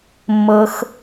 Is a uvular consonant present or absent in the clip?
absent